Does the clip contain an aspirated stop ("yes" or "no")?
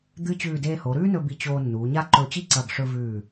no